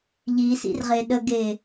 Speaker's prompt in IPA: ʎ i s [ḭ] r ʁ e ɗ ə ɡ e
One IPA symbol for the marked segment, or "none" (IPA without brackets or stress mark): ḭ